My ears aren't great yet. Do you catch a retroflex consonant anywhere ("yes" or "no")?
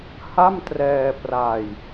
no